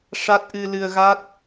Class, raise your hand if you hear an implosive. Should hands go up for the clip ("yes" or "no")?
no